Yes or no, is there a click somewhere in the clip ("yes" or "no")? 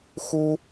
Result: no